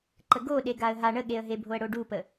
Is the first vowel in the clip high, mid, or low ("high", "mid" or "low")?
mid